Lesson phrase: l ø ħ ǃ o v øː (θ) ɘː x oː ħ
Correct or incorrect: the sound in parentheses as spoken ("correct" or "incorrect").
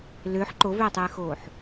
incorrect